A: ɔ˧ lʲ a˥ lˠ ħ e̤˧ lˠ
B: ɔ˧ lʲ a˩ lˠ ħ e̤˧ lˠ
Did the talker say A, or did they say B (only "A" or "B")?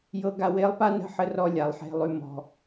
B